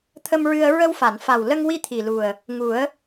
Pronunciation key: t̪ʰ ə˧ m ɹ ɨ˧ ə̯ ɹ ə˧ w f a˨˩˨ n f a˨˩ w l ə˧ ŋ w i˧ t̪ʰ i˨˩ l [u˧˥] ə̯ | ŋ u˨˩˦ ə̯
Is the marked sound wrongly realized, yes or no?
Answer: yes